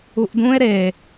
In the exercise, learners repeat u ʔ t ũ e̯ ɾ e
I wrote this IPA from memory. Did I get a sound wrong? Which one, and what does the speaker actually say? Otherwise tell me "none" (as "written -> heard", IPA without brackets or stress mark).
t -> d